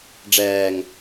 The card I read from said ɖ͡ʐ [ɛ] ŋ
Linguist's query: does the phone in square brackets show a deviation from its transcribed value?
yes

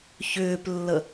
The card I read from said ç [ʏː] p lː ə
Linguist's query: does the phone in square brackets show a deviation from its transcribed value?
no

